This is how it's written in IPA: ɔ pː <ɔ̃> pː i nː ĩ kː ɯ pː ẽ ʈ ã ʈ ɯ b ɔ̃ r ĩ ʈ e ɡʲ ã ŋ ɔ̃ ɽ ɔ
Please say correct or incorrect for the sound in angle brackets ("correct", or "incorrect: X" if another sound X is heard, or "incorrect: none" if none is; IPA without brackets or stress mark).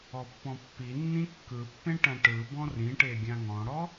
correct